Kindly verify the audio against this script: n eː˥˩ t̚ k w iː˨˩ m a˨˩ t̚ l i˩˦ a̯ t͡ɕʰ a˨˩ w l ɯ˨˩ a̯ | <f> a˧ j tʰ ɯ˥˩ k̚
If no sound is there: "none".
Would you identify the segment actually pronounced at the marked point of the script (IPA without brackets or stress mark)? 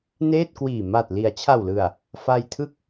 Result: f